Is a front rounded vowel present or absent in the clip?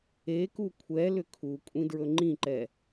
present